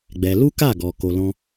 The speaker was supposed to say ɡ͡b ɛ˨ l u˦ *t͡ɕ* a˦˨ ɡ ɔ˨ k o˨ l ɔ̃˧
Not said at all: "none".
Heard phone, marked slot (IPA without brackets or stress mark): k